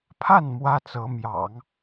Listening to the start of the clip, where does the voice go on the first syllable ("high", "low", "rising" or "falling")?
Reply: falling